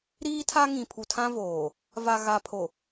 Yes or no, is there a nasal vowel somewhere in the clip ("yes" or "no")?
yes